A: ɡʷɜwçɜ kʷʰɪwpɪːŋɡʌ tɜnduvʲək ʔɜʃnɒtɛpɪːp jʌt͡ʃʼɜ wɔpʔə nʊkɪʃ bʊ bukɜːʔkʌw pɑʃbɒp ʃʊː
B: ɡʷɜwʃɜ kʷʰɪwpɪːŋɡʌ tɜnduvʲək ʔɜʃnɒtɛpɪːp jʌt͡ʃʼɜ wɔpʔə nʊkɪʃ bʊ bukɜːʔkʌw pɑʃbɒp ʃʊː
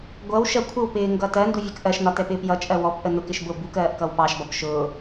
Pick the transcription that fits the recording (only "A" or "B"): B